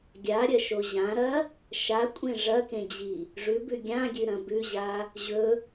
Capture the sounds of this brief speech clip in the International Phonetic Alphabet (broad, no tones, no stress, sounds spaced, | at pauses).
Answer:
ɡʲ a ɾʲ ɐ ʃ o ʑ ã ɾ ɐ | ʃ a kʷʼ ẽ ʐ ɐ k ẽ d͡ʑ i | ʐ ʉ b ʉ ɡʲ ã ɡʲ ʉ ɾ ɐ̃ b ʉ ʑ a | ʑ ɵ